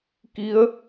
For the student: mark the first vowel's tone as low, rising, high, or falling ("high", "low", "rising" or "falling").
rising